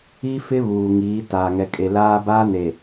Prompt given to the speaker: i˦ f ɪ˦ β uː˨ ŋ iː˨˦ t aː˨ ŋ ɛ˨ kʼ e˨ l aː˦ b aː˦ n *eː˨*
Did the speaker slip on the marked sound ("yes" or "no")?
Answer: yes